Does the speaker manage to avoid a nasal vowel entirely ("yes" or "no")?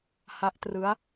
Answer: yes